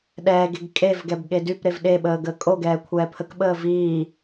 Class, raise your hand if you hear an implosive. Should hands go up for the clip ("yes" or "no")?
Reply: yes